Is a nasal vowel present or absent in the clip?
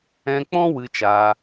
present